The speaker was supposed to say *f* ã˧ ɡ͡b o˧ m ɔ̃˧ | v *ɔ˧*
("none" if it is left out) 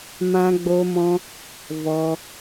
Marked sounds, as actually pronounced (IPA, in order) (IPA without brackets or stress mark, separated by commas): m, ɔ˧